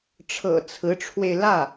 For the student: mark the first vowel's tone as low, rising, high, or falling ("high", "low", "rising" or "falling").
low